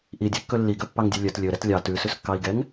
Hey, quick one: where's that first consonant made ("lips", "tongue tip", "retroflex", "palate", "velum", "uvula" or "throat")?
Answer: throat